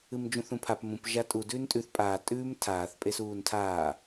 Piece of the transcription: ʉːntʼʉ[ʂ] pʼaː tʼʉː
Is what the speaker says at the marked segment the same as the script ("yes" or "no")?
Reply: no